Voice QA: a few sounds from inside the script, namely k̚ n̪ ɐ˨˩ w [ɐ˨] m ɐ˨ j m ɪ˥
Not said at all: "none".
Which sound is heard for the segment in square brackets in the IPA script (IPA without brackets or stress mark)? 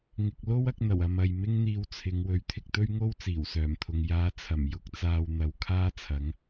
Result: ɐ˨